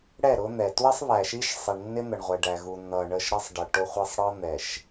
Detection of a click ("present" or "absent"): absent